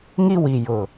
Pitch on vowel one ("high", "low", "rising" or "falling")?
high